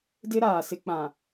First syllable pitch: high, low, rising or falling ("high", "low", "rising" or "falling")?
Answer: high